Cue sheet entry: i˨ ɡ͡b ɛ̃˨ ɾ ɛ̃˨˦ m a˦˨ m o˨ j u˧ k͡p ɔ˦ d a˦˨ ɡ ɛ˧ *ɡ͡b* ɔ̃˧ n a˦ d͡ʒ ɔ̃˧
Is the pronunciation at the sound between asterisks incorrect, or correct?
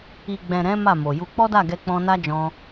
incorrect